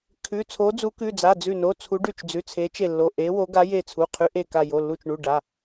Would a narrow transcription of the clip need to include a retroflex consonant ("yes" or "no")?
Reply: yes